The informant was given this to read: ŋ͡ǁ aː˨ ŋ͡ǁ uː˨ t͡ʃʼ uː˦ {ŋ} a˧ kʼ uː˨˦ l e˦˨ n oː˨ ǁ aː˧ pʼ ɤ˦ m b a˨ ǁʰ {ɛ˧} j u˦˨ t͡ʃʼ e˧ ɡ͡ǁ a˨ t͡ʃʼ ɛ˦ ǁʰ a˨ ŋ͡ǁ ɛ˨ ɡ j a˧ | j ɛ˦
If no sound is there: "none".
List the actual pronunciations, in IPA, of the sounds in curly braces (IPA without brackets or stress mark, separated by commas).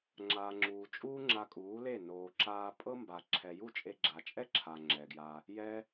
ŋ͡ǁ, ɛ˨